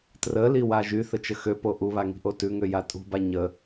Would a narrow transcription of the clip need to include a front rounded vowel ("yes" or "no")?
yes